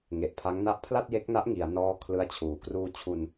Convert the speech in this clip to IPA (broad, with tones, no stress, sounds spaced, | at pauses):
ŋ e˨˩ ʔ pʰ a˦˥ ŋ n a˦˥ ʔ pʰ l a˥˩ t̚ j e˦˥ k̚ n a˦˥ ʔ ŋ i˩˦ a̯ n ɔː˦˥ kʰ l ɯ˦˥ a̯ t͡ɕʰ uː˩˦ k r uː˧ t͡ɕʰ u˧ n